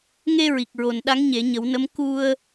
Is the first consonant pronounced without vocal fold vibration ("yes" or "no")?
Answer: no